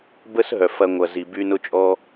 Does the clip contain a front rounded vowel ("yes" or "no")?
yes